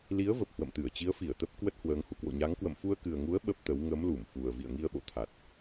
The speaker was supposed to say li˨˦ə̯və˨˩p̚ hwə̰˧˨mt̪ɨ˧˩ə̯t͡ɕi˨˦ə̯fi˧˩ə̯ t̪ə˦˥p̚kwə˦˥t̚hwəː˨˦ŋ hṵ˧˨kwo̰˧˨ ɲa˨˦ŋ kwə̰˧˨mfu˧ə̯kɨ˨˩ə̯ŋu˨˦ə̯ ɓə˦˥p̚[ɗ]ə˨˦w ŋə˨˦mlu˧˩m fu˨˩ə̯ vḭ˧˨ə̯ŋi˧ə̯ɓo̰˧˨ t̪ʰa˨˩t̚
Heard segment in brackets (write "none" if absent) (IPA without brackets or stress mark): t̪